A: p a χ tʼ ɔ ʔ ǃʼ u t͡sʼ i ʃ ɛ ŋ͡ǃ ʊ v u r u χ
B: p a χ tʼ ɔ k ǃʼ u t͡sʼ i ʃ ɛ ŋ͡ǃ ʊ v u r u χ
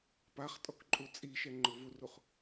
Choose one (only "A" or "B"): B